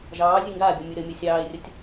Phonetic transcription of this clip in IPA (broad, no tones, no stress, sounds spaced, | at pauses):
ʒ ɑː zʲ ʉ ŋ ɡ aː bʲ ɔ mʲ ʉ ɾ ɘ mʲ ɘ sʲ ɑː ɪ̯ rʲ ə tʲ